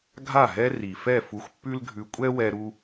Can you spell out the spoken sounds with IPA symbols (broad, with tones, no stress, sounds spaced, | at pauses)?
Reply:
ɡʱ a˦˨ ɦ ɛ˦ r i˨ f ɛ˦˨ f u˧ xʷ pː ʉ˦ l ɡʱ ʉ˧ kʷʼ ɛ˦ w ɛ˧ ɾ u˦